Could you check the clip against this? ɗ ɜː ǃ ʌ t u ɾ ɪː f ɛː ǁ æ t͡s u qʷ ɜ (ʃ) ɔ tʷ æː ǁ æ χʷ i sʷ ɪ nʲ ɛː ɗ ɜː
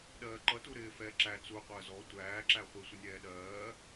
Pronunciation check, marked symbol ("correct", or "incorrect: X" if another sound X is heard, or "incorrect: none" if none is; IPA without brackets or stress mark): incorrect: z